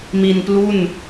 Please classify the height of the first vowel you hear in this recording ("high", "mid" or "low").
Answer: high